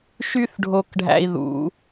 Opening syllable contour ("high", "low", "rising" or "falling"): high